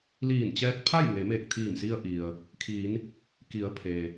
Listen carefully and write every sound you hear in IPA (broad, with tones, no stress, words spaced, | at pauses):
liː˧˩nt͡ɕɛː˧t̚ pʰa˥˨jŋe˩˧ meː˧˩k̚t̪ʰiː˧˩msi˧ə̯ ʔi˩ə̯ | kʰiː˩˧n | ki˩˧ə̯ pʰeː˩